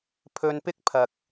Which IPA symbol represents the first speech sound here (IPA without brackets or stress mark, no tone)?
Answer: pʰ